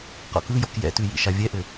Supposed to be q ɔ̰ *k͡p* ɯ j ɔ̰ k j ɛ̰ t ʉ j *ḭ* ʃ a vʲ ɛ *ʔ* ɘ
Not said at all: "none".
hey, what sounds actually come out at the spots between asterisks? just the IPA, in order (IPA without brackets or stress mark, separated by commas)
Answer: k, ḭ, ʔ